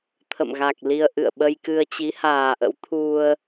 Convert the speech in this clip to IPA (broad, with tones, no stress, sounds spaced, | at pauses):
t̪ʰ ə̰˧˨ m ɣ a˨˩ k̚ l i˧ ə̯ ʔ ɨ̰˧˨ ə̯ ɓ ə˧ j k ɨ˧ ə̯ t͡ɕ i˨˦ h aː˨˩ ʔ ə̰˧˥ w t̪ʰ u˧ ə̯